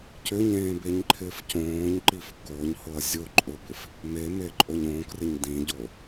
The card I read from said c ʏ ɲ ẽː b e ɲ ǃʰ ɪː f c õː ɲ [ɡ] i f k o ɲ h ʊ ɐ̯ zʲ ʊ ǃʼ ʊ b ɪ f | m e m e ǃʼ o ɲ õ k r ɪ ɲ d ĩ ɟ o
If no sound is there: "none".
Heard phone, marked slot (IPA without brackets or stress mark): ǃ